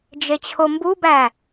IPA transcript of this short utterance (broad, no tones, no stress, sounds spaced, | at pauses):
d͡ʒ e t͡ɕʰ o m b u b æ